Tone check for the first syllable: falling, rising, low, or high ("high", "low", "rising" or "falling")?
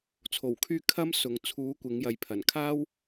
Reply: low